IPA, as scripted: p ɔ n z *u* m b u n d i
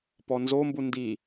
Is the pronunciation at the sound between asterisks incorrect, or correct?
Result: incorrect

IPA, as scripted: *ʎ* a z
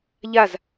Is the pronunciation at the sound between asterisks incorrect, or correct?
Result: correct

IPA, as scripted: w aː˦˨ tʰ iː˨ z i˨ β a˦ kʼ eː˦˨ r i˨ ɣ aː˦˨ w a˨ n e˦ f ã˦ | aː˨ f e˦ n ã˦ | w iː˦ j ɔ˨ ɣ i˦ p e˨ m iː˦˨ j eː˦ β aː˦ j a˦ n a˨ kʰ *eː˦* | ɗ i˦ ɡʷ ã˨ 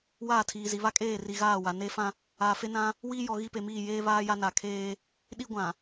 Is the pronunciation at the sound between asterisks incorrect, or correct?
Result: correct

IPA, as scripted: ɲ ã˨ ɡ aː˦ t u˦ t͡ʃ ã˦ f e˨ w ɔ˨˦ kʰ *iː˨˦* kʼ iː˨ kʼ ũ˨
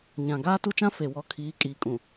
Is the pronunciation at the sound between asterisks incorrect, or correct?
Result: correct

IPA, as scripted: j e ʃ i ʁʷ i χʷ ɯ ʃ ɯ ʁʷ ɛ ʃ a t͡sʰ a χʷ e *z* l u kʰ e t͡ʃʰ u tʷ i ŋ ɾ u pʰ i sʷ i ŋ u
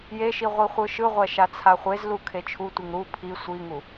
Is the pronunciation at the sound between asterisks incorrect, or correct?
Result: correct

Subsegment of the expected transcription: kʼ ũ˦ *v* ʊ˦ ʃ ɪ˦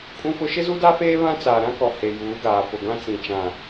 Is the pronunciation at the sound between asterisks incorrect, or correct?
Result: incorrect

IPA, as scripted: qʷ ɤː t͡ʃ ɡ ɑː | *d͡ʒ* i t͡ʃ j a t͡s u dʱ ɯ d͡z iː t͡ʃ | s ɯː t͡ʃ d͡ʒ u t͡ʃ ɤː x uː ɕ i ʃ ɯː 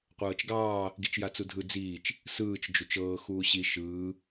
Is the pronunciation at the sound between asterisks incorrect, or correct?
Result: incorrect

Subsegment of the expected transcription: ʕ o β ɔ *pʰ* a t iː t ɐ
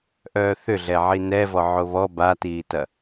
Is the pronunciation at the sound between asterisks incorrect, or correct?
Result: incorrect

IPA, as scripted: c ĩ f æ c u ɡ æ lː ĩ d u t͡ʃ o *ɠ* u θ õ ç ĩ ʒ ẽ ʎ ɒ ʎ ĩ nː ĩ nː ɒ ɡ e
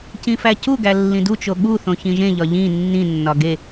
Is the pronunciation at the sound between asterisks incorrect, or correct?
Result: correct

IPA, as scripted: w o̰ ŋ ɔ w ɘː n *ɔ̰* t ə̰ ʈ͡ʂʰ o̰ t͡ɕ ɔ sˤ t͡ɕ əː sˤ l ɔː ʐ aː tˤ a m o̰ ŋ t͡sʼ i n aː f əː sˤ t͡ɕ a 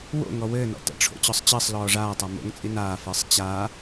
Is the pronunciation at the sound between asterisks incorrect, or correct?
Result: correct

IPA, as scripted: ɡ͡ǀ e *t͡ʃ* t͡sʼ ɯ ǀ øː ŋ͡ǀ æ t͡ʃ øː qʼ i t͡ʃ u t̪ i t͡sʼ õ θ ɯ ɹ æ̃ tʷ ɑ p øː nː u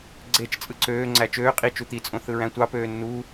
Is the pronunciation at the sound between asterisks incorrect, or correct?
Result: correct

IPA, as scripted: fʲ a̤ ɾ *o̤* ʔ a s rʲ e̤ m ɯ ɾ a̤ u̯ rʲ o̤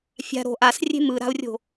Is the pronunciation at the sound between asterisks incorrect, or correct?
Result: correct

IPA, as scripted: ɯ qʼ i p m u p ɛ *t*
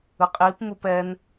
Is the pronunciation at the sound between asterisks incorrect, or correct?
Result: incorrect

